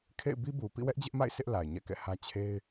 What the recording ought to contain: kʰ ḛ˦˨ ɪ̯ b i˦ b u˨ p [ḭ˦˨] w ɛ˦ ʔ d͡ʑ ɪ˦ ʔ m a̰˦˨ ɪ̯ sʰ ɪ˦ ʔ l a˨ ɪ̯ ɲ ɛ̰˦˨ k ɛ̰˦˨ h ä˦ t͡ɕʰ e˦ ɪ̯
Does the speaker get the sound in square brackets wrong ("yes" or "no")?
no